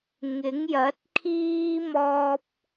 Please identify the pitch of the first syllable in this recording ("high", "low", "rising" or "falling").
rising